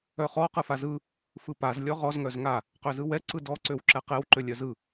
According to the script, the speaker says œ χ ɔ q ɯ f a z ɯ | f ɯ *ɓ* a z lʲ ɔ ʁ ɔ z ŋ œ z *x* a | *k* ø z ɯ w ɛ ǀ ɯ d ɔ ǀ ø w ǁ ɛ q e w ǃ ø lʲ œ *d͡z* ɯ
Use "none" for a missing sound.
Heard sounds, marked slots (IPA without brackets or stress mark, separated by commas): p, ŋ, q, z